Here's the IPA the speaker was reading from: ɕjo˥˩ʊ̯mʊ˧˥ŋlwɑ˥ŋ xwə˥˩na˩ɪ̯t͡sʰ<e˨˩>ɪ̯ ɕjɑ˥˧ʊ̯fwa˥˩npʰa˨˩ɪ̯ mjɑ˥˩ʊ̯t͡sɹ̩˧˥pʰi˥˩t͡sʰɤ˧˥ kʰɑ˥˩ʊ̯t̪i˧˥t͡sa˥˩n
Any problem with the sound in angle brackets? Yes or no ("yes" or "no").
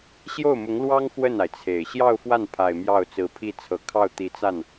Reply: no